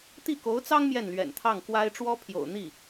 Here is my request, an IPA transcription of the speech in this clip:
t̪ i˥˩ k o˧˥ ʊ̯ t͡s ɑ˥ ŋ m j ɛ˥˩ n l ɥ ɛ̰˨˩ n t̪ʰ ɑ˥˩ ŋ k w a˥ ɪ̯ ʈ͡ʂ w ɔ˥ pʰ j o̰˨˩ ʊ̯ n̪ i˥˩

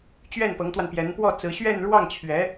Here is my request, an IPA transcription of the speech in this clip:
t͡ɕ ɥ ɛ˥˩ n p ɤ˧˥ ŋ t̪ w a˧ n p j ɛ˧˥ n p w ɔ˥˩ t͡s ɹ̩˧˥ ɕ ɥ ɛ˥˧ n ɻ w ɑ˥˩ ŋ t͡ɕʰ ɥ ɛ˧˥

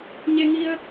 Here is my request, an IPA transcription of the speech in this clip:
ɲ e˧ ŋ i˧ ə̯

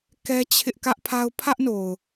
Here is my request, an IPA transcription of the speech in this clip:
k ɛ˦ t͡ɕʰ ɪ˦ ʔ k ä˦ ʔ pʰ a˦ ʊ̯ pʰ ä˦ ʔ n o˨ ʊ̯

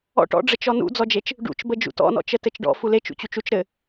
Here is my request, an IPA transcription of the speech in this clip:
ɔ̰ ʈ ɔ̰ ɖ͡ʐ ɘ t͡ʃ ɔ n ṵ d͡z ɔ d͡ʒ e t͡ʃ | ɖ ṵ t͡ʃ b ə d͡ʒ ṵ t ɔ̰ n ɔ̰ t͡ʃ ə t ɘ t͡ʃ ɖ ɔ̰ f u l e t͡ʃ ṵ t͡ɕ u t͡ʃ u t͡ʃ ɾ ɘ

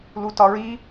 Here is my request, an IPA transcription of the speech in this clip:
l u t ɒ ɹ i

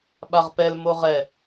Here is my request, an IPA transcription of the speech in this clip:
ɓ a ʁ p ɛ l m o ʁ ɛ

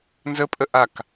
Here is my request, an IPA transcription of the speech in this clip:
n z ə pʼ ə ʔ a k

